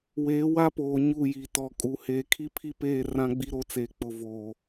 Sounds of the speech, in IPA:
w eː˨˦ w a˦ p oː˨ ɲ u˦˨ j i˨ t ɔ˨ kʼ u˨ h eː˨ kʰ i˦ pʰ i˦ p eː˦˨ r ã˦ ɡ͡b i˦ ɾ o˦ t͡s eː˨ k͡p ʊ˨ v oː˨

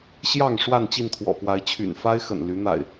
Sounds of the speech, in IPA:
ɕ j ɑ˥˨ ŋ ʂ w a˥˨ n t͡ɕ i˥˨ n t̪ʰ w ɔ̰˨˩ p w a˨˦ ɪ̯ t͡ɕʰ y̰˨˩ n f a˦ ɪ̯ x ə̰˨˩ n l y˨˦ n̪ a̰˨˩ ɪ̯

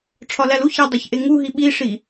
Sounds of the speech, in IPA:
ʈ͡ʂʰ ɒ l æ l u ç æ dˤ o ç ʔ e ŋ u ɦ i ɓ i ʂ i

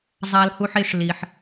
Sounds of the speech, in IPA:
zˤ a˨ l h u˨ ħ i˨ ʂ l i˨ ħ

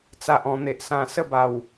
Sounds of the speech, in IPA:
t͡s a˨ ʔ ɔ̃˨˩ n̪ e˨ ʔ s ã˧ s ə˥˧ b a˨˩ w

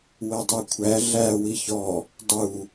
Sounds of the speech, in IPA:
w ɜ dˤ ɜ kʷʰ æ ɮ æ w i ç ɔ | dˤ u

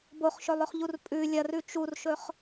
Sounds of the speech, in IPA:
b o χ ʃ ɵ lˠ ɵ χ ʎ u r pʼ ʉ lʲ ɐ r ʉ t͡ʃ u r ʃ ɵ χ

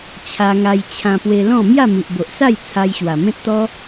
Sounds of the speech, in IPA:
t͡ɕʰ a˧ ŋ a˧ j t͡ɕʰ ã˧ p w e˧ l ɔ̃˥˧ m j a˥˧ m i˨ ʔ b o˨ ʔ s a˥˧ j t͡sʰ a˧ j ɕ w a˨˩ m ẽ˦ t̚ t̪ ɔ˦

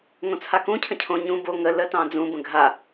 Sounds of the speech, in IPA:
ŋ õ t͡sʰ a k ũ cʰ ə̃ cʰ õ ɲ ũ b o ŋ ə l ə t ɑ̃ d͡z ũ b ə̃ ɡʱ a

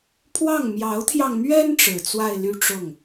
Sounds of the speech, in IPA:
pʰ w ɑ˥˩ ŋ m j ɑ˧˥ ʊ̯ t̪ʰ j ɑ˧ ŋ m ɥ ɛ˥ n ʈ͡ʂ ɻ̩˨˩ t͡s w a˥˧ ɪ̯ l y˥˧ ʈ͡ʂ ʊ˥˩ ŋ

